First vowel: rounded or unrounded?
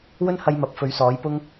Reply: rounded